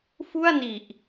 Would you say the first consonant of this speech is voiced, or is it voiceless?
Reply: voiceless